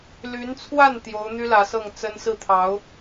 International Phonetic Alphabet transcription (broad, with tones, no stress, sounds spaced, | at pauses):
l y˧˥ n t͡sʰ w a˥˩ n t̪ j o˧˥ ʊ̯ n̪ y˥ l ä˧˥ s ɤ˥˩ ŋ t͡s ə˥ n s ɹ̩˥˩ t̪ʰ ɑ˧˥ ʊ̯